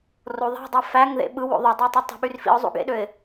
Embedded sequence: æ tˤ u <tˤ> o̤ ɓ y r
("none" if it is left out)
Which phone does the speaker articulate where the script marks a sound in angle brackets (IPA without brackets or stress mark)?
tˤ